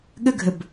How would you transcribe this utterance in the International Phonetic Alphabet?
ɠ ə ɡʱ ə b

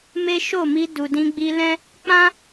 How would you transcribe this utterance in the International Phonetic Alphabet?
m e˦ ʃ o˦˨ m i˧ d u˨ d ĩ˧ ɡ͡b i˧ l ɛ̃˦ | k͡p ã˦

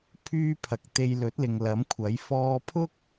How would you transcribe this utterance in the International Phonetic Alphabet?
pʰ yː˥ pʰ ɐ˨˥ k̚ t̪ e˧ j l ɵ˨˥ t̚ l ɪ˨ ŋ l ɐ˨˥ m kʷʰ ɐ˨˥ j f ɔː˧ pʰ ʊ˥ k̚

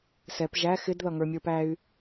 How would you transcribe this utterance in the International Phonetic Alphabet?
s ɛ p ʒ æ x ɪ d ð ʌ ŋ ə˞ mʲ ə˞ p æ y̯

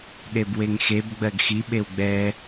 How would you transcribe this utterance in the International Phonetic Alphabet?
ɗ e b w e ŋ x e b ɡ͡b ɜ ɡ x i ɓ e w ɡ͡b ɛ

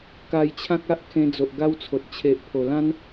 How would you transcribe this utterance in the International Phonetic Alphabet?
k a˧ j t͡ɕʰ ã˦ k̚ a˦ ʔ kʰ ẽ˧ d͡z o˨ ʔ ɡ a˦ w t͡sʰ o˨ t̚ t͡ɕʰ e˨ ʔ pʰ o˨˩ l ã˦ n

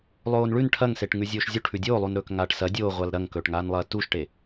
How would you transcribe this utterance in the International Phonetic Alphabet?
lˠ oː n ɭ ʉ n ʈʰ ɐ ŋ s e ʈ ŋ ʉ zʲ oː ʃ zʲ u ʈʰ ʉ dʲ oː lˠ u n ɾ ɵː k ŋ aː ʈ s ɐ dʲ oː ʁʷ a l ɾ ɐ ŋ k ɵː ʈ ŋ aː n lˠ ɐː t u ʃ ʈ e

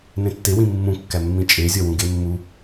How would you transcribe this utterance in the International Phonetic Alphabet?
n ẽ tː e w ĩ mː ũ kː æ mː ĩ t͡ʃʼ e zʲ ɒ w ũ ɡ e mː u

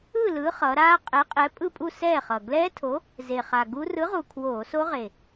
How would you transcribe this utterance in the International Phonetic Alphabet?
ɯ˥˨ l ɯ˨˥ χ ʌ˩˧ ɾ aː˦˥ qʼ ɛ˨˥ qʼ ɛ˨˥ pʼ ɯ˥˨ pʼ u˥˨ s ɛː˥˨ χ ʌ˨˩ ɡ l ɛː˦˥ tʰ o˨˥ | z e˨˩ χ a˨˩ ɡ u˦˥ r ɯ˨˥ ʁ u˨˩ kʰ w oː˧˩˧ s o˦˥ ʁ e˨˩

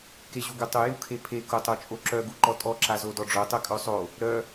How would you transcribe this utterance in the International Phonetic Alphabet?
k e ʑ u ɡ œ tˤ u j u kʰ e pʰ e k o tˤ o t͡ʃʼ o ǁ œ ɡ u ǃ ɔ tʼ ɔ ǁ a z o d ɔ ɖ͡ʐ o tˤ œ kʼ œ sˤ o | ɾ œ

